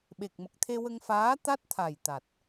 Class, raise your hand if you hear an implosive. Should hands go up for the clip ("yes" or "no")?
yes